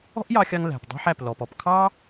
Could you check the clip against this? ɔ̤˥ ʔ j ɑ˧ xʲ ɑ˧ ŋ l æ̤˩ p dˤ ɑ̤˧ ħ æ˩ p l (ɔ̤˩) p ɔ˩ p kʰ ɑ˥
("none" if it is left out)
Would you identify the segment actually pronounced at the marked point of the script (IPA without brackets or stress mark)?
ɔ˩